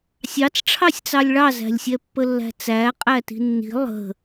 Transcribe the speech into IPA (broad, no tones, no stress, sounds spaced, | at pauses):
sʲ ɑ t͡s ʈ͡ʂʰ ɑ sʲ t͡s ɑ lʲ ɭ ɑ z æ̤ lʲ sʲ ɛ pː ə lː æ̤ t͡s æ qʼ æ t i̤ nː i̤ lˠ ə̤